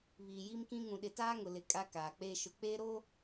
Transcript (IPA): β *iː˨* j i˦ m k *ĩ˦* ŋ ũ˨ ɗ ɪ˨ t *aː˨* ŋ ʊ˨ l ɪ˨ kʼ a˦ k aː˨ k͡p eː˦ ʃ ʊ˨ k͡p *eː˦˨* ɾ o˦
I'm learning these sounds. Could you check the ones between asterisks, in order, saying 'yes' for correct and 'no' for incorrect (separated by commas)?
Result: yes, yes, no, no